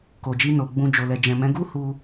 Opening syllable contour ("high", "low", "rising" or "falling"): low